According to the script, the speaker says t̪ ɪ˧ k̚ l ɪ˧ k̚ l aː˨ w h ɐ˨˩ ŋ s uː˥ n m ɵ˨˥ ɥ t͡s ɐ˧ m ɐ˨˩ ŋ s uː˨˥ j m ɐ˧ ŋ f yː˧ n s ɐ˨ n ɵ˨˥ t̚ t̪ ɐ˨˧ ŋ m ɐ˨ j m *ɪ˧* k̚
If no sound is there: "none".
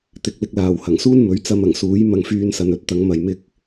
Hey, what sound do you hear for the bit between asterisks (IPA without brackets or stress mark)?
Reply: ɪ˧